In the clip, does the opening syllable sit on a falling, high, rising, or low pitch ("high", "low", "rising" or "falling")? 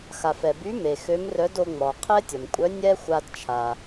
low